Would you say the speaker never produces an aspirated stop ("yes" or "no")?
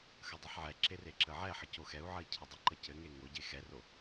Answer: no